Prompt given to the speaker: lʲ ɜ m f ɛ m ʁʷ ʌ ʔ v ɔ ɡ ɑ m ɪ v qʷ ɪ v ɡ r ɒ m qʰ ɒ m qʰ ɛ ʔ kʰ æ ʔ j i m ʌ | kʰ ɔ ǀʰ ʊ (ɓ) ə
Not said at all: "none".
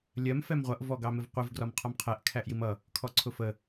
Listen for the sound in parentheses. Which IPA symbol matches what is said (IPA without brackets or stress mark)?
f